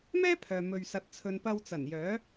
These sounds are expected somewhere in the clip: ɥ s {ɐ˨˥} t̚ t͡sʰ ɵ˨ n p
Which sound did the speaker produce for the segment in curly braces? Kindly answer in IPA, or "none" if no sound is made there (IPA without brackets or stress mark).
ɐ˧